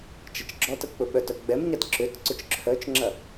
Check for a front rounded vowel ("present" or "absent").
present